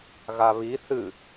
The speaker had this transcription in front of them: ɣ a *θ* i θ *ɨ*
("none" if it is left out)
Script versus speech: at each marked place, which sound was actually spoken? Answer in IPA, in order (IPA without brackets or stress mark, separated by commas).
β, ɨ